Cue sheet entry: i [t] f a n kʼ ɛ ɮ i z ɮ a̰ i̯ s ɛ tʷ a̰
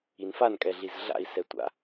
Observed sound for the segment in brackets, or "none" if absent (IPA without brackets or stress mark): n